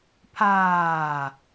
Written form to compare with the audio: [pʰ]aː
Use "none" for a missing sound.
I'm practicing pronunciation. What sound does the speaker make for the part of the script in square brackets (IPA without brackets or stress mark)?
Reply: pʰ